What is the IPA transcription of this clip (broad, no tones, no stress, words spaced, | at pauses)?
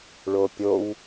ɭopʲow